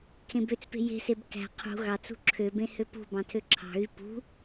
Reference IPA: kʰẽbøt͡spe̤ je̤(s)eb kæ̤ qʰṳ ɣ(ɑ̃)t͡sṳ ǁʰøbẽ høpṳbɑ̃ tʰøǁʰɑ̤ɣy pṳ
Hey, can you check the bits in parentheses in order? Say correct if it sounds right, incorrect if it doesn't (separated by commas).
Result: correct, incorrect